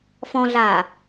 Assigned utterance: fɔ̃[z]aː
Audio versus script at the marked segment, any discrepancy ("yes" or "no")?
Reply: yes